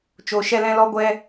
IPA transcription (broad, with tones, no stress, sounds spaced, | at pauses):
t͡ʃ o˧ ʃ ɛ˦ l ɛ̃˦ l ɔ˦ ɡʷ ɛ˦